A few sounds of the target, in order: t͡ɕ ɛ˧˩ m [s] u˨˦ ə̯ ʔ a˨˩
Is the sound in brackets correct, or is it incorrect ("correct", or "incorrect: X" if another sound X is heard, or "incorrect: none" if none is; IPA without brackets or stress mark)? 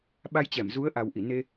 incorrect: z